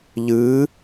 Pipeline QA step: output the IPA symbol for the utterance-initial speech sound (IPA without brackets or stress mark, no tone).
ʎ